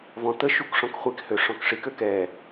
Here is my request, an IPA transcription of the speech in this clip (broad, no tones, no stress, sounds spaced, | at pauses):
v ɔ̃ t̪ ə ʃ u k ʂ ɔ̃ k χʷ i k h ø ʂ ɔ̃ k ʂ i k ø k ɛ